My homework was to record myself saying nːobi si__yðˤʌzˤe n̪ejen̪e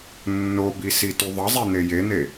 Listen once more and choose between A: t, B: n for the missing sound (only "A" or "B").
A